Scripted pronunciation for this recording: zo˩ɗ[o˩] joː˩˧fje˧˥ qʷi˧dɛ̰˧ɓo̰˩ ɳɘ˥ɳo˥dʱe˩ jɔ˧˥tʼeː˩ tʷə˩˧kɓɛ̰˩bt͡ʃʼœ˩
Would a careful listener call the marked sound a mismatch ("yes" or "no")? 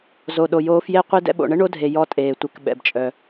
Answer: no